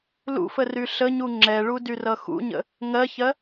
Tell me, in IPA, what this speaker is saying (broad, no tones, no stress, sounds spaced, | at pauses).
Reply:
l ṵ f ə r y ɬ ə ɲ u ŋ͡ǁ ɛ ɭ u d y r ʌ x ṵ ɲ ə̰ | ŋ ɜ ç ɜ